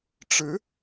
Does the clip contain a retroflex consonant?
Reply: yes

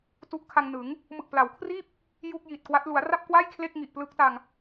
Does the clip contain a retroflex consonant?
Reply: no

